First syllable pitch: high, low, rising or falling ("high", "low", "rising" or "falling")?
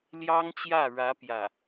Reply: high